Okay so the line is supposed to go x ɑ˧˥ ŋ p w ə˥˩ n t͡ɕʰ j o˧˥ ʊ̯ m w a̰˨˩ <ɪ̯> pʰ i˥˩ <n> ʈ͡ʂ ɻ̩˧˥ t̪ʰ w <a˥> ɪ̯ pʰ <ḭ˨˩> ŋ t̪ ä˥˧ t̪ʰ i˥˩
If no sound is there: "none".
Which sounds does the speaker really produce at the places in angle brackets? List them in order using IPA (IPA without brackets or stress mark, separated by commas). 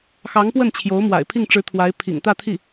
ɪ̯, ŋ, a˧˥, ḭ˨˩